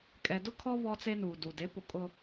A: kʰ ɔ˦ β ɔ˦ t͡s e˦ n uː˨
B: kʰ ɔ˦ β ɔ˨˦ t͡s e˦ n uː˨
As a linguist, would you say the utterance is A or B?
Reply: A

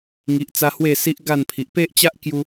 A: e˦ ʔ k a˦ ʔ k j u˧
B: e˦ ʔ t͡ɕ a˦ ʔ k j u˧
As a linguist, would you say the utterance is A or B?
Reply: B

